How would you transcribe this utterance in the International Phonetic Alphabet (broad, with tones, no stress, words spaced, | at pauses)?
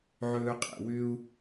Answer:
ʕɵː˧qʼḛ˨ wʏ˧u̯